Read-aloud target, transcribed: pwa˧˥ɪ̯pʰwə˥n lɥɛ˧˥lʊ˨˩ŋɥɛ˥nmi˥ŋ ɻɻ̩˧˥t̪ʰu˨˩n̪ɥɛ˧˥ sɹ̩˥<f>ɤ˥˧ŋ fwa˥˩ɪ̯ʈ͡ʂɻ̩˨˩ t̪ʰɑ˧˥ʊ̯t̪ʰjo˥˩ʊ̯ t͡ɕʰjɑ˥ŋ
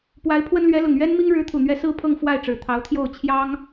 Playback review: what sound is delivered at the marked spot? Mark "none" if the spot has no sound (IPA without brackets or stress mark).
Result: pʰ